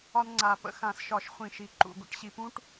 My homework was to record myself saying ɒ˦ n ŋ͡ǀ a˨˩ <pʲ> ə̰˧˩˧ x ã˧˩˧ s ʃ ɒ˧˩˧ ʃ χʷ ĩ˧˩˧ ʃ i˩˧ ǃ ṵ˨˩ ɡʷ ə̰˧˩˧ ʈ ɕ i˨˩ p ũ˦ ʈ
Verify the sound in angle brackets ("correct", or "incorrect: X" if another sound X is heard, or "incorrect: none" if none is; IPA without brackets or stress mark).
incorrect: p